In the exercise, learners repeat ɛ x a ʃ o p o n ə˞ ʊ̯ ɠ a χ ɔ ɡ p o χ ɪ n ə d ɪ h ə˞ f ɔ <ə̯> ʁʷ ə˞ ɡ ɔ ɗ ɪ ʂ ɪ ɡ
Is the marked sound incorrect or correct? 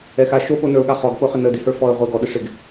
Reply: correct